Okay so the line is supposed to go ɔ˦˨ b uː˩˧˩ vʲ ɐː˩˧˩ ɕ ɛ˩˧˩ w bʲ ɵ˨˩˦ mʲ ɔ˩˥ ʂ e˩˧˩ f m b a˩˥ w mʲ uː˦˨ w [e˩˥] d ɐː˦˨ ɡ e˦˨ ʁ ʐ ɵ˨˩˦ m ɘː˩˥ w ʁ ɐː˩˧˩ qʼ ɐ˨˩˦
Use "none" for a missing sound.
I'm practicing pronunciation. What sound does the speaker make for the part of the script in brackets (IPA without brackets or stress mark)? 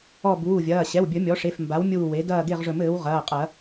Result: e˩˥